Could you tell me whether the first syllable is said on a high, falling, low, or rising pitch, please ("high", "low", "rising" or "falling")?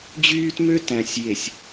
high